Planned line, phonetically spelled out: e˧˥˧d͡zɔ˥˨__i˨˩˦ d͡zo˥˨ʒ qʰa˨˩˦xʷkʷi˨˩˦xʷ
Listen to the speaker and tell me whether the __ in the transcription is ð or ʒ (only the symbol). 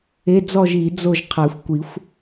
ʒ